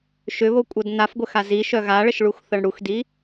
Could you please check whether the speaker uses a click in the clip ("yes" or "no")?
no